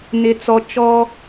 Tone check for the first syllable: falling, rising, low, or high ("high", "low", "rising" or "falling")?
low